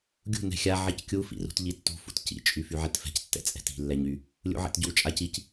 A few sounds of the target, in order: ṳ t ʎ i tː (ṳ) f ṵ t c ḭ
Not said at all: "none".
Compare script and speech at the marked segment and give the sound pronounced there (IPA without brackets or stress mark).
ṳ